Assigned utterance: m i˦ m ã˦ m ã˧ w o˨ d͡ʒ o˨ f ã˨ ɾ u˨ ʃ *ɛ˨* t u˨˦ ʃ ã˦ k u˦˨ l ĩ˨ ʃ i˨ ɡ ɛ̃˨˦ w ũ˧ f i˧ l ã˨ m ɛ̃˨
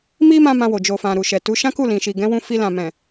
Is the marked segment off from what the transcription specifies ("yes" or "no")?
no